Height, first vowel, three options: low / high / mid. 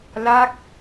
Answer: low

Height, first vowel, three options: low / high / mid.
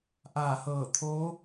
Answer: low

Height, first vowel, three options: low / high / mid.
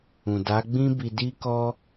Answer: high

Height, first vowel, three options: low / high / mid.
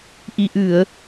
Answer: high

